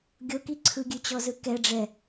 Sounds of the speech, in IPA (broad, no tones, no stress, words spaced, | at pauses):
ɡʲoki ǀʰɯɡʲʉt͡ɕɔzɯ kɛɖ͡ʐɛ